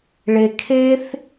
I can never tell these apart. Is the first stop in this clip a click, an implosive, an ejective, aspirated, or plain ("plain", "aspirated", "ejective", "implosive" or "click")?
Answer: aspirated